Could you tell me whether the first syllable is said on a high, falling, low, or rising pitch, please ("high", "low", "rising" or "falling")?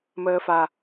low